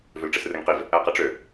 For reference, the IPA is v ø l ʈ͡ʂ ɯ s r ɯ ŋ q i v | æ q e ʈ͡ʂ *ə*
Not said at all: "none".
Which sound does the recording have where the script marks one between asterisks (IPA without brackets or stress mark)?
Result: ø